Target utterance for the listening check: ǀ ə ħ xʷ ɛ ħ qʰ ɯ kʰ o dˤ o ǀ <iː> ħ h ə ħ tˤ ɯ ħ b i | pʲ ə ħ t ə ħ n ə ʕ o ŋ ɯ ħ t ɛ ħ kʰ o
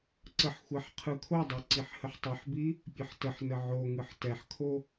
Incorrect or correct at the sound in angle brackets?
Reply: incorrect: i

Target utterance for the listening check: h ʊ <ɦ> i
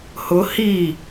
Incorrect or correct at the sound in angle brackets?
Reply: incorrect: h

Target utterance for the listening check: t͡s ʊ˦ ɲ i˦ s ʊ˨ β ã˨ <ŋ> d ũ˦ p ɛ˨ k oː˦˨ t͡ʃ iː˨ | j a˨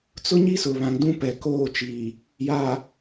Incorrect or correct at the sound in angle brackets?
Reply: correct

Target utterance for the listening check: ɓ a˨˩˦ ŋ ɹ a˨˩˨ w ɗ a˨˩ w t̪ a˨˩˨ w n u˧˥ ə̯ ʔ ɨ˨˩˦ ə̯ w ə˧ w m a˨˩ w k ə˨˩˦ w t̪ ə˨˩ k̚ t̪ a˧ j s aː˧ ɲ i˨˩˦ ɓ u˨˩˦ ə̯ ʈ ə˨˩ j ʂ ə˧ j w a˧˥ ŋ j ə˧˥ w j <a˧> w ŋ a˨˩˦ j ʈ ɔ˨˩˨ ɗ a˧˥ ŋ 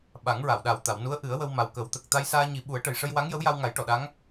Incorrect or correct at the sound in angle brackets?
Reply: correct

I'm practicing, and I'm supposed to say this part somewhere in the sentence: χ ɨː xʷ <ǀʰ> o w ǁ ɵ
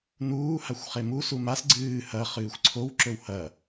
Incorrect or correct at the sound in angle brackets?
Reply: correct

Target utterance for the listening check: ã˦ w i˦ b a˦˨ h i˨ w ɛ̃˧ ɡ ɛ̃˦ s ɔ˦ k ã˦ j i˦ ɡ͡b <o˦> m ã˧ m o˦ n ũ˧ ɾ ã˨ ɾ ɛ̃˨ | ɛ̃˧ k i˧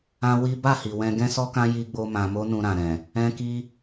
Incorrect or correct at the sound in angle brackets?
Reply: correct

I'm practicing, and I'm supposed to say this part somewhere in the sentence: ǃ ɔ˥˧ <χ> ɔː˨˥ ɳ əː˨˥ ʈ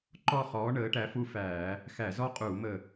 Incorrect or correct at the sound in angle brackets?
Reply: correct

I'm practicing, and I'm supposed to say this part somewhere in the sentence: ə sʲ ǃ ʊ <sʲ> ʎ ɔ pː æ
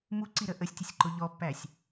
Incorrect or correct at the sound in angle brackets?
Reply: incorrect: none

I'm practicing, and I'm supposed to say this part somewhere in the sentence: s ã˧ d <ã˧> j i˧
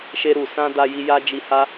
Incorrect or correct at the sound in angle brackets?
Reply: incorrect: a˧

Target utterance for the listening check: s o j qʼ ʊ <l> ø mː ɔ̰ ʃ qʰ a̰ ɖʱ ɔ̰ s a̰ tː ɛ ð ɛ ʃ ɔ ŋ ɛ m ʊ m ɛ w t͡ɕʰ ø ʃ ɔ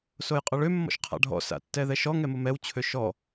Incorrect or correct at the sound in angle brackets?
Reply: incorrect: ɭ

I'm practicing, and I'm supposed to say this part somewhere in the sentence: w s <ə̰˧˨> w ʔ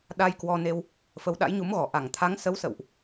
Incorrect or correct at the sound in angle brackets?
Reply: correct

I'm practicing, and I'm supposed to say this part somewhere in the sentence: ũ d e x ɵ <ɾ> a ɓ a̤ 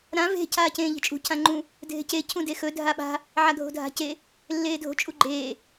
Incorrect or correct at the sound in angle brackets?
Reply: incorrect: dʱ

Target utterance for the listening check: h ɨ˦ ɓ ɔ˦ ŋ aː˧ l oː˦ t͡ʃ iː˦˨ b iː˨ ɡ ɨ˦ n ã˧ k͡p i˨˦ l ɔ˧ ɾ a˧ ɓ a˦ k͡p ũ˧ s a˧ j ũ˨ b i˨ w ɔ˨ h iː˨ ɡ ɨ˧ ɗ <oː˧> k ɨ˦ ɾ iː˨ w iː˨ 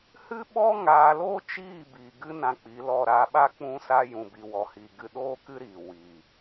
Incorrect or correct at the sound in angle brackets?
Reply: incorrect: oː˦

